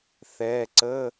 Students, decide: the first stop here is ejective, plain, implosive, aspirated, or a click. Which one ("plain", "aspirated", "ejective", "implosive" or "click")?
click